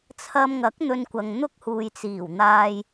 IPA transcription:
t͡sʰɐ˧mŋɐ˨˥k̚ n̪ɵ˧nkʷɐ˨ŋn̪ʊ˥k̚huː˨j t͡siː˨˩wn̪aː˧j

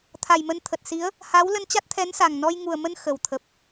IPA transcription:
t̪ʰa˨˩jmə˧nt̪ʰə˨˩t̚si˨˦ə̯ | ha˨˦w lə˧nt͡ɕa˦˥t̚t̪ʰɛ˨˦nsa˨˩ŋ nɔ˧jŋu˨˩ə̯mə˧n xə˨˩w t̪ʰə˨˩p̚

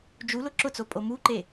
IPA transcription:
d͡ʒu lʊǁʊt͡so pʼomuǃe

